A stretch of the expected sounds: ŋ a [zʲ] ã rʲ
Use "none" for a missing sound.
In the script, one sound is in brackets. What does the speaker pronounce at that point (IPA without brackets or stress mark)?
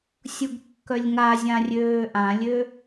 zʲ